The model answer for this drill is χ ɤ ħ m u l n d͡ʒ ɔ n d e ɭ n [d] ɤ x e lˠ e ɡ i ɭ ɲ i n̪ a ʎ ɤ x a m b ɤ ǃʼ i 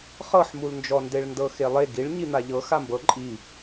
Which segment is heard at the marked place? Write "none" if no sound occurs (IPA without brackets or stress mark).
d